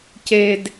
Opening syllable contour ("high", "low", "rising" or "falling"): high